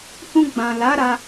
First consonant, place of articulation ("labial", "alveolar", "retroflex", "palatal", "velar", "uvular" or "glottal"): glottal